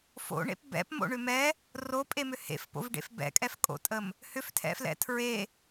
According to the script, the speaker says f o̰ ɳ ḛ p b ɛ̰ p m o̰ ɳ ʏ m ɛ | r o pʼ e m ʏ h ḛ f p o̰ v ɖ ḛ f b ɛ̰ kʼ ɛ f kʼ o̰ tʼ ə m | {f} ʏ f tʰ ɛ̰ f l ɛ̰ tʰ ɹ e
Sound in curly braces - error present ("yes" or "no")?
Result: yes